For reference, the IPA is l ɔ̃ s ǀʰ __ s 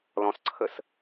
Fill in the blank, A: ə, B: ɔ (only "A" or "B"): A